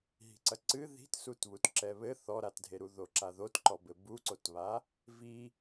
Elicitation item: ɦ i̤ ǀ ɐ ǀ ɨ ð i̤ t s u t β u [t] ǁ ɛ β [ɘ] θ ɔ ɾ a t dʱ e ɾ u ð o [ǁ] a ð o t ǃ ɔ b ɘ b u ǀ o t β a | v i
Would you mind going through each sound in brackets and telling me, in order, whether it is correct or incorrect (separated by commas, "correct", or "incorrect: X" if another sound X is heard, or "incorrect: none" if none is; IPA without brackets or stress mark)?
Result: correct, correct, correct